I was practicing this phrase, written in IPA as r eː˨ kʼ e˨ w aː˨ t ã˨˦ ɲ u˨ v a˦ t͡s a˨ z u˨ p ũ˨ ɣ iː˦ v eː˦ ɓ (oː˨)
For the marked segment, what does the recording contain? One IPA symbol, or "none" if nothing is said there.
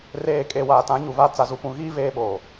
oː˨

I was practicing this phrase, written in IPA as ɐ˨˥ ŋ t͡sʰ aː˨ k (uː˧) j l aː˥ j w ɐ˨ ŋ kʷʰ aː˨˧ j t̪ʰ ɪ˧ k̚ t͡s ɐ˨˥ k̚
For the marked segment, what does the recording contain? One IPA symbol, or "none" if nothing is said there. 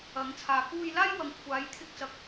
uː˧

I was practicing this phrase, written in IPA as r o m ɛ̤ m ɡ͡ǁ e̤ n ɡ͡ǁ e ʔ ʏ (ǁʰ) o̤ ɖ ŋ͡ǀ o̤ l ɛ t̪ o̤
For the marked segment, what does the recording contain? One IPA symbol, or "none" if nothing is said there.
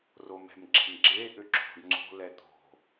ǁʰ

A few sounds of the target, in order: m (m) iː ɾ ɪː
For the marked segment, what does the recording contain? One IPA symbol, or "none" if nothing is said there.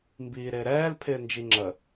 b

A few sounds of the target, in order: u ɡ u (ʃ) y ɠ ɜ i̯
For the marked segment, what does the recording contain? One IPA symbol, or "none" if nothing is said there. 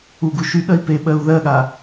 ʃ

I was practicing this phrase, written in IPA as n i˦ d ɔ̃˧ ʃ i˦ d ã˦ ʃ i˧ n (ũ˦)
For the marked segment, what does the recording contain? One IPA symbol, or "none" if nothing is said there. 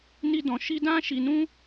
ũ˦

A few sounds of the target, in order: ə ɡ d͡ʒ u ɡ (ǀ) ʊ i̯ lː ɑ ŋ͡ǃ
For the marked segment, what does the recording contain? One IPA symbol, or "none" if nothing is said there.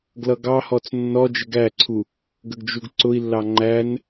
ǀ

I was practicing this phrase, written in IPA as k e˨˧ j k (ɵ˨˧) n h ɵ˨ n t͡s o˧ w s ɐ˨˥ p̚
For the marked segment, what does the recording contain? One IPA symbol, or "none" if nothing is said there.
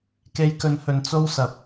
ɵ˨˧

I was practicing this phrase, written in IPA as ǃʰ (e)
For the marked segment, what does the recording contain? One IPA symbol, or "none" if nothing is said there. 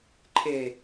e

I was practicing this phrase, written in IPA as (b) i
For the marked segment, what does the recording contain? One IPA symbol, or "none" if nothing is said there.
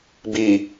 b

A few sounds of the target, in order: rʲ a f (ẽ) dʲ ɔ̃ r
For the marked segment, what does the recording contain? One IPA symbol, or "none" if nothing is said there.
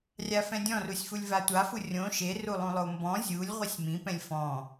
ɛ̃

